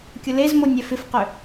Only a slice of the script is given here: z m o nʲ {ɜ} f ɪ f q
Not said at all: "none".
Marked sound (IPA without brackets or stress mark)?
ɛ